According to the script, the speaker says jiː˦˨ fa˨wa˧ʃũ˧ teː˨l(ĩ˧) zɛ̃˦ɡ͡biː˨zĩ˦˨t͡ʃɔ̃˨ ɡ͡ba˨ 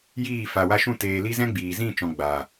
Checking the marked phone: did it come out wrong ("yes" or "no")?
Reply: yes